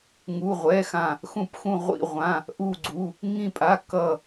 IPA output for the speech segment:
ŋ u˩˧˩ ʁʷ ɛ˩˧˩ x ã˧˩ | x ũ˧˩ p x ũ˧˩ ʁʷ ḭ˧˩ ʁʷ ã˩˧˩ | ʔ u˧˩ ɡ͡ǀ u˩˧˩ | ŋ ĩ˧˩ pʼ a˩˧˩ k ʌ˧˩

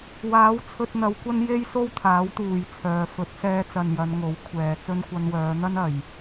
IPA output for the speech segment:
w aː˨˥ w t͡sʰ ɵ˧ t̚ n̪ ɐ˨˧ w kʷ ɐ˥ n j e˥ j s o˥ w t̪ʰ aː˨˥ w t̪ uː˨ j t͡sʰ œː˨ f ɵ˨˥ t̚ s ɛː˧ t͡s ɐ˨ n j ɐ˨˧ n ŋ o˨˥ w kʷʰ ɛː˨ t͡s ɵ˥ n kʷ ɐ˧ n w œː˨˧ n̪ ɐ˥ n ɐ˨ j

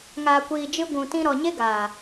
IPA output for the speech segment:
ŋ aː˧ kʷ iː˧ d͡ʒ ɨ˦ ɡʷ ũ˧ t ĩ˦ ɾ ɔ˧ ɲ e˦ ɡ aː˨

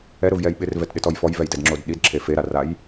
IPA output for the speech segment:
ɛ ɾ ʊ v j ɛ j ɓ ɪ r v ɛ t ɗ ɪ t ɔ j f ɔ j v ɛ j d ɛ d ŋ͡ǁ o d ɗ i d ǁʰ e f e ɾ a r a j

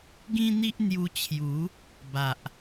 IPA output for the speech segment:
ɡ ĩ˦ n̪ i˦ ʔ n̪ j u˧ t͡ɕʰ j u˨˦ | b a˨ ʔ

